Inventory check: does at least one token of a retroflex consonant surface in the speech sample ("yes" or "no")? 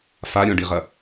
yes